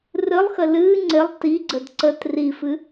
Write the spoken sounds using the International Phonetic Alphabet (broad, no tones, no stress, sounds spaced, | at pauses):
r ɨ lˠ x ə l ɨː ŋ͡ǀ ɪ lˠ t i ɡ͡ǀ ə d ǀ ə t r i f ɨ